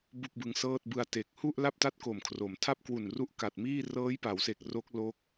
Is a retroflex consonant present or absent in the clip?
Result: absent